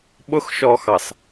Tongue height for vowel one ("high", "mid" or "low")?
high